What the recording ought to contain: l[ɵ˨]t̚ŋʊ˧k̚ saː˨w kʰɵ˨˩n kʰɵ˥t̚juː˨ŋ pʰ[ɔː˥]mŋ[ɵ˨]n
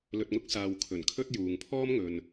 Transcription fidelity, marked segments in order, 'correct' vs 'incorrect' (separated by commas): correct, correct, correct